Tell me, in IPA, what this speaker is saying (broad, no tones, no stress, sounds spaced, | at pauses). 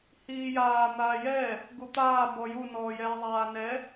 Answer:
h iː j aː n̪ aː j ɛ | ɡ u t̪ aː b ɔ j u n ɔː j ɛː zˤ aː n ɛ